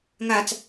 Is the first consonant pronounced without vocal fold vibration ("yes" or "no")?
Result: no